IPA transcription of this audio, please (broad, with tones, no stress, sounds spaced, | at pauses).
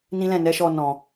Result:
n ĩ˦ l ɛ̃˦˨ n ɛ˨˦ ʃ ɔ˧ n ɔ̃˨